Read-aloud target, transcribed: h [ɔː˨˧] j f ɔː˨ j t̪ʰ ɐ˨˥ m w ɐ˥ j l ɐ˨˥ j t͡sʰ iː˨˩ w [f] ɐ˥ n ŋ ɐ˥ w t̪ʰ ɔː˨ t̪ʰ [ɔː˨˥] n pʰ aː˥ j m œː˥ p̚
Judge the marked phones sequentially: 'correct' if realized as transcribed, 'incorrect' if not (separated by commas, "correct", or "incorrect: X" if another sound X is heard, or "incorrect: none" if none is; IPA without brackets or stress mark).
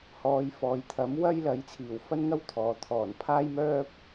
correct, correct, incorrect: ɔː˨˩